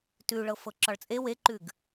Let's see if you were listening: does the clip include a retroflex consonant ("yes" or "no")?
yes